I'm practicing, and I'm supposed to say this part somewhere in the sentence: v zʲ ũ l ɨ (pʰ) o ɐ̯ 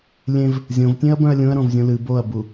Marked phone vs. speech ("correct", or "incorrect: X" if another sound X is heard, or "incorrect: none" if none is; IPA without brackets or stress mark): incorrect: b